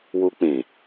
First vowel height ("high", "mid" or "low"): high